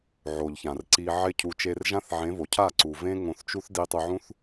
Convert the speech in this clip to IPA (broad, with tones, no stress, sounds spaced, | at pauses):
ʕ o˨ ʎ ç ã˨ r ǀ i˧ ʕ ɪ˧ cʰ u˨ t͡ʃ e˧ r ʒ ã˦ θ ʕ ẽ˨˦ v o˨ cʰ a˦˨ ǀ u˨ v ẽ˦ ŋ õ˧ θ t͡ʃ u˦ θ d i˧ tˤ u˧ ʕ ũ˦ θ